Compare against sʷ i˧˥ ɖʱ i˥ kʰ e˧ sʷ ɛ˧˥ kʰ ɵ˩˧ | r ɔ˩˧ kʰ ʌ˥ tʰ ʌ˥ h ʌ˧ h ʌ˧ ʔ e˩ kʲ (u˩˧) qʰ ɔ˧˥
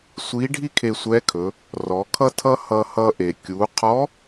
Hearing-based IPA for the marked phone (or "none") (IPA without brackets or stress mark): u˩˧